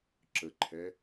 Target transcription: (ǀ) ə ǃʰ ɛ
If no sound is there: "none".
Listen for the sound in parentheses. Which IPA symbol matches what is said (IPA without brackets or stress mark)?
ǁ